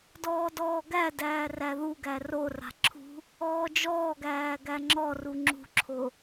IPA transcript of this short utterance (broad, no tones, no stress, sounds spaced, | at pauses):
d ɔː d ɔː ɡ æ d æː r æ ð u ɡ æ r o r a̤ ǁʰ ṳ | ɔː d͡ʒ ɔː ɡ æː ɡ æ ŋ͡ǁ ɔ r u ŋ͡ǁ ṳ ǁʰ o